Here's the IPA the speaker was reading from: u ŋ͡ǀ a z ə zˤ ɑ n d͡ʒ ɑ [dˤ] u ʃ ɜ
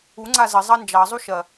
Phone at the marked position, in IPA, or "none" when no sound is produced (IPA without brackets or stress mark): zˤ